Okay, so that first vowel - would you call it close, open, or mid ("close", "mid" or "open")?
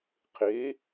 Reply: mid